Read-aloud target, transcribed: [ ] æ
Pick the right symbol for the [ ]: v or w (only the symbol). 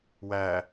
w